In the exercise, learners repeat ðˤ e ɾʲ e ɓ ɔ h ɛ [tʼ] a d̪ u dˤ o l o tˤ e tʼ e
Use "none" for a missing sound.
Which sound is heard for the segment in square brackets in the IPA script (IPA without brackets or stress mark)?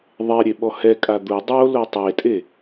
kʼ